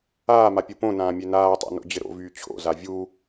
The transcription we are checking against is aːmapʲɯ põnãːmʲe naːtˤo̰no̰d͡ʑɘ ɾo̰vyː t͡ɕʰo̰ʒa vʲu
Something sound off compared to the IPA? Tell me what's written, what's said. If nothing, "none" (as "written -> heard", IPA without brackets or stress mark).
ʒ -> z